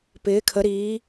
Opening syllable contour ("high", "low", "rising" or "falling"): rising